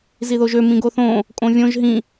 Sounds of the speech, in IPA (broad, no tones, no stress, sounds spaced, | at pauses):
z i ð o ʒ ø m ĩ ɡ o θ õ | kʼ õ vʲ õ ʒ ɦ ĩ